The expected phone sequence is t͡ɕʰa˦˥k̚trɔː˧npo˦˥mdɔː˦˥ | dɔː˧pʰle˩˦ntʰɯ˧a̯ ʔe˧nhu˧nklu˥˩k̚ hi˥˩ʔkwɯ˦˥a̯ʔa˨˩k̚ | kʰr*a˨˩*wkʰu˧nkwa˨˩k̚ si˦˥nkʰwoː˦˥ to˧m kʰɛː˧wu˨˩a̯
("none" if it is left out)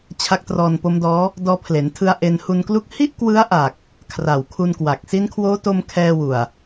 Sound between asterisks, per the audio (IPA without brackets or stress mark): a˨˩